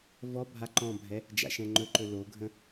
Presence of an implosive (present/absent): absent